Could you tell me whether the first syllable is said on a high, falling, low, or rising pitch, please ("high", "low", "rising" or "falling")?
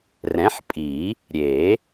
rising